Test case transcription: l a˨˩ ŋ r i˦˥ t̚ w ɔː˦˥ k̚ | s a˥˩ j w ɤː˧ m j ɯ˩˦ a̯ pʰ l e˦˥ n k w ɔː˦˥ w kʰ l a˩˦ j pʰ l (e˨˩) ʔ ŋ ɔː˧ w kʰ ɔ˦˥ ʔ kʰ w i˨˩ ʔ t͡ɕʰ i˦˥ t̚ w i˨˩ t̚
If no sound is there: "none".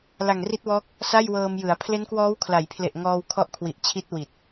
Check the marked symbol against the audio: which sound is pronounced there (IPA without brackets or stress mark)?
e˨˩